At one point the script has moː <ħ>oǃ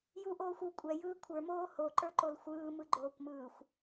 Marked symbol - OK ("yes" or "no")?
no